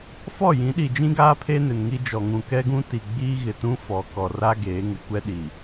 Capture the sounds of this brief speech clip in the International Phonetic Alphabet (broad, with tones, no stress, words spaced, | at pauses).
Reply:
fɔ˦˨jĩ˨˦ɗi˨d͡ʒĩ˦ ɡaː˦pʰe˦ nɪ˨nŋi˦ d͡ʒɔ˨ŋũ˨ kɛ˦ɡũ˦ti˨ ɡ͡biː˦ɣɪ˨tũ˦ fɔ˨ kɔ˨ra˦ ɡeː˨˦ŋɪ˨ kʷɛ˦ɗi˨